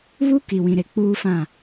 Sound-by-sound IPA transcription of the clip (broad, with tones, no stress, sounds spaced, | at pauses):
β u˦ k i˨ w ĩ˨ ɾ e˨ k͡p uː˦ f ã˦˨